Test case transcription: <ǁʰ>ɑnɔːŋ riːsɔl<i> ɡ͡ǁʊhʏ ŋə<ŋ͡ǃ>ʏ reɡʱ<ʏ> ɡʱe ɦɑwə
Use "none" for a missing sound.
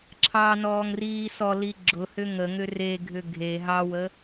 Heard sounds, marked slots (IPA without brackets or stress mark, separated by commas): ǁʰ, i, ŋ, ʏ